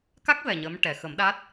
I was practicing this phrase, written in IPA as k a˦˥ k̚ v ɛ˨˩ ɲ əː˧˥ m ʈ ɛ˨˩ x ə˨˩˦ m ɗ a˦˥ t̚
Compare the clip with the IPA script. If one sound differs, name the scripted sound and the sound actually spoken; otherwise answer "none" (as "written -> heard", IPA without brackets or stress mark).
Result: none